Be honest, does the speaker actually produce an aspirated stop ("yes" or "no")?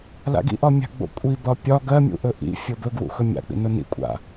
no